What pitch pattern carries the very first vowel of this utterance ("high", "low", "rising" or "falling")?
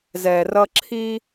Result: low